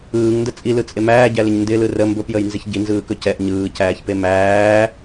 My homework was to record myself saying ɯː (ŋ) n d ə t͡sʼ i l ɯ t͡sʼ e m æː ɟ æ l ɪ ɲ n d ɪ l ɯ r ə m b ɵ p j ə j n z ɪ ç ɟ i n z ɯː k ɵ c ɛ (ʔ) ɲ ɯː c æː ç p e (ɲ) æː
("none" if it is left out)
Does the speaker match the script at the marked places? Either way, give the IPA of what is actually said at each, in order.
ŋ, ʔ, m

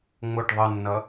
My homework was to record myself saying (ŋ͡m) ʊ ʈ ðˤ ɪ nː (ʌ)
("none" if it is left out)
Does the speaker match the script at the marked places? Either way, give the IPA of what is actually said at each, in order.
ŋ͡m, ʌ

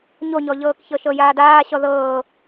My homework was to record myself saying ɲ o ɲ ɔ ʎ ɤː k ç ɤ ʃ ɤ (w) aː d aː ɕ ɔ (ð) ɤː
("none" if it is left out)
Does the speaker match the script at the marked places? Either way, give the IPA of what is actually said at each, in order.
j, ð

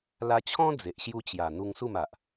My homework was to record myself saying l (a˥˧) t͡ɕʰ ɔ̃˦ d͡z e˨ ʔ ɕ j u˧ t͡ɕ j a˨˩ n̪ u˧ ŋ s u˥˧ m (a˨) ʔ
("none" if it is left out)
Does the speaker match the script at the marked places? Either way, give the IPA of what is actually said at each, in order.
a˧, a˨

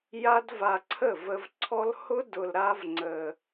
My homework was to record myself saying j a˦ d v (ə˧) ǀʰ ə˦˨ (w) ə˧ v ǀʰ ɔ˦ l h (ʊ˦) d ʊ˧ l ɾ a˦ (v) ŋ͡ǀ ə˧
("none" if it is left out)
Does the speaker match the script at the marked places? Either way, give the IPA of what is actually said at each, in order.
a˧, v, ʊ˦, v

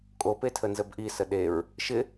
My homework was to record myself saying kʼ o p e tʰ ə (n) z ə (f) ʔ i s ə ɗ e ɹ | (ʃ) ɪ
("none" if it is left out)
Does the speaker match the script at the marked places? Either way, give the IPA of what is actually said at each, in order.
n, b, ʃ

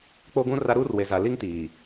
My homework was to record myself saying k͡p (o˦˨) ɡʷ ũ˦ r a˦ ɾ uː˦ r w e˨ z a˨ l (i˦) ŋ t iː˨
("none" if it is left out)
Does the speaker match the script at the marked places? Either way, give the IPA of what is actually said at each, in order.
o˦, i˦

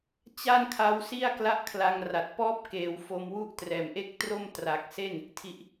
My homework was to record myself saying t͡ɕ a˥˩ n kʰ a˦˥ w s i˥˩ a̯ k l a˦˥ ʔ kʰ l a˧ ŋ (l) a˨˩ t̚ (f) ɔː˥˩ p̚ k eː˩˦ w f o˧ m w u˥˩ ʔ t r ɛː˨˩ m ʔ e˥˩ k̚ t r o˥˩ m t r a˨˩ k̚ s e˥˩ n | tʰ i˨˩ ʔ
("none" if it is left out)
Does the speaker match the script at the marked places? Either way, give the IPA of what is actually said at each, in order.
r, p

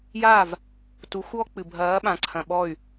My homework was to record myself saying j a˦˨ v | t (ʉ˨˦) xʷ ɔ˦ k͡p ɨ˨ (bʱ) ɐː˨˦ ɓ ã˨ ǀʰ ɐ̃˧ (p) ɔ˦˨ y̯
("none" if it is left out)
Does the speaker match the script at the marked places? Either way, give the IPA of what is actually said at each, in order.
u˨˦, bʱ, ɓ

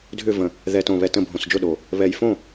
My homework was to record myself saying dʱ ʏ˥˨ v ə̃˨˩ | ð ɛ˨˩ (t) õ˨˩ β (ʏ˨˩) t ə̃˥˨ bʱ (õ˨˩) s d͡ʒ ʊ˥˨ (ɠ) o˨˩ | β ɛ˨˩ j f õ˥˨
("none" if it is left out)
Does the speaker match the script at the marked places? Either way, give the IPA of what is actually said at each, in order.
t, ɛ˨˩, õ˨˩, ɗ

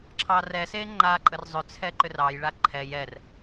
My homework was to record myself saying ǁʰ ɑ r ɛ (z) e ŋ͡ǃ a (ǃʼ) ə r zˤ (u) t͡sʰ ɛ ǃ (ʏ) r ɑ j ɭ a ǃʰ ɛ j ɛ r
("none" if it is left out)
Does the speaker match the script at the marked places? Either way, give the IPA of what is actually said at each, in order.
s, ǃʼ, ʏ, ʏ

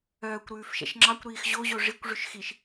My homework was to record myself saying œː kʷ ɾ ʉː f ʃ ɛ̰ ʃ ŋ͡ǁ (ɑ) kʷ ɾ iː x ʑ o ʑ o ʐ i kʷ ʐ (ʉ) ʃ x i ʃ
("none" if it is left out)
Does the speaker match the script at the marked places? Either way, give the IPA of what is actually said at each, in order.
ɑ, ʉ

